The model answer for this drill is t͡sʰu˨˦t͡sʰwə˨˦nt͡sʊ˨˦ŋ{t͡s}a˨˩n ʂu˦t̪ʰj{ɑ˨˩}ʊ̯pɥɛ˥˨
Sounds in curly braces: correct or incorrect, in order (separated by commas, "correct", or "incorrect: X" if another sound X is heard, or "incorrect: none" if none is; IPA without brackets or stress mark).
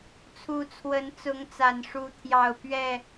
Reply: correct, incorrect: ɑ˥˨